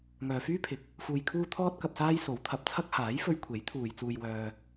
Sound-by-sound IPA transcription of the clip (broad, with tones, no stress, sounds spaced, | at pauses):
ŋ œː˨ f yː˥ pʰ ɪ˨ k̚ | f uː˧ j kʰ uː˥ t̪ʰ ɔː˥ t̚ k ɐ˧ p̚ s aː˥ j s o˨˥ w t̪ʰ ɐ˨˥ p̚ t͡sʰ ɐ˥ k̚ h aː˨˥ j f ɵ˧ ɥ kʷʰ e˨˥ j t̪ʰ uː˨ j t͡s uː˧ j w œː˧